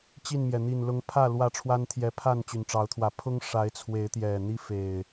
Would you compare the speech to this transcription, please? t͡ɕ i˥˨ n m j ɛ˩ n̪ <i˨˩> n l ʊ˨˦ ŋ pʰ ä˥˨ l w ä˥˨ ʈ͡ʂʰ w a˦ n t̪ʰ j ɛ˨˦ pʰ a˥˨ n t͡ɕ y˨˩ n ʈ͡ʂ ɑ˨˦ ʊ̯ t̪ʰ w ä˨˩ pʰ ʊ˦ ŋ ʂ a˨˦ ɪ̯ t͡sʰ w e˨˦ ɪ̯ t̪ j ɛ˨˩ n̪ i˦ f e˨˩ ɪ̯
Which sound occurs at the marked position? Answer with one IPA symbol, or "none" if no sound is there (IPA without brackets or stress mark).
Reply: i˨˩